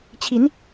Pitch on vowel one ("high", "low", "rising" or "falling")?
rising